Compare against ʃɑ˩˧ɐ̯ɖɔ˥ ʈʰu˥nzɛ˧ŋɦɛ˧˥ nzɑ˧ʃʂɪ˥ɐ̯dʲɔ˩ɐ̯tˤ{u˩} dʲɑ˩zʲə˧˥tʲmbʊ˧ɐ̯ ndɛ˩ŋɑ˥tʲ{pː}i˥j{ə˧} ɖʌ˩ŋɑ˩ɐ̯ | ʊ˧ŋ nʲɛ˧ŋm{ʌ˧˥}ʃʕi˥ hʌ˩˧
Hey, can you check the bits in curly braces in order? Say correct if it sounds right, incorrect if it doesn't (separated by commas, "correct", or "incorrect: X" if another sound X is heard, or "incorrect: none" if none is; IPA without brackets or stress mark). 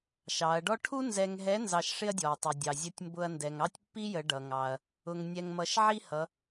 correct, correct, incorrect: ə˩˧, incorrect: ʌ˧